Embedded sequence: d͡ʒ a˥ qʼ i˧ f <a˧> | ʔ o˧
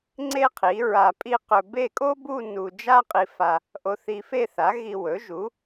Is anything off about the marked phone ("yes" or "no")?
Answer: no